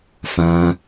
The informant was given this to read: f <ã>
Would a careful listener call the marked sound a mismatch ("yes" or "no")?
no